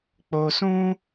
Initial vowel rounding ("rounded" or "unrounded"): rounded